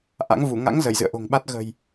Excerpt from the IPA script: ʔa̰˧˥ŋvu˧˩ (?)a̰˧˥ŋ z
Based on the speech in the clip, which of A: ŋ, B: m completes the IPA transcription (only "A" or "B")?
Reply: A